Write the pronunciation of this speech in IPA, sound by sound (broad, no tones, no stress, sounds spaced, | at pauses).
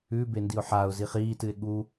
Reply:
ʉ b e n d i ʊ̯ ħ a ʊ̯ z i χ iː t ɨ ɪ̯ ɠ u